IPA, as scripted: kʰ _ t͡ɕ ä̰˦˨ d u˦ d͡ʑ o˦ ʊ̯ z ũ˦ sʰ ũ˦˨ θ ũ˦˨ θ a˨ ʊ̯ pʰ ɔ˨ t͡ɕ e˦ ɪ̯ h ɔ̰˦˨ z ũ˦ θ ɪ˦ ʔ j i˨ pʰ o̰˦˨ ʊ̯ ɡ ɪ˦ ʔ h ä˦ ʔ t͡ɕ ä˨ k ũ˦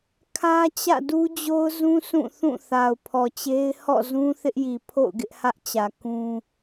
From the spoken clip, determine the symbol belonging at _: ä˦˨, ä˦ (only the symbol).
ä˦